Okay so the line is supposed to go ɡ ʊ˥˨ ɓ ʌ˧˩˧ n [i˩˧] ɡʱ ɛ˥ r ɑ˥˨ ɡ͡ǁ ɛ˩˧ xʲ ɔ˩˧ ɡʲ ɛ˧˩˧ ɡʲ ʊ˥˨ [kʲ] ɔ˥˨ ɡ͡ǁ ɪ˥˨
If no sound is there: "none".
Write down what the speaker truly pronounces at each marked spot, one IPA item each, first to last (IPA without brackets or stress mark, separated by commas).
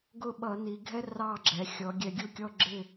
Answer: i˩˧, kʲ